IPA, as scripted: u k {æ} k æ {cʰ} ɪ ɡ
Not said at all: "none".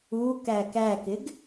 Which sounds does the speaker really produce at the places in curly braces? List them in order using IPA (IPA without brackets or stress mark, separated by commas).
æ, k